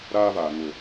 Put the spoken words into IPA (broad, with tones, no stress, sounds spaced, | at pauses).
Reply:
ɾ aː˦ v aː˨ ŋ ʊ˨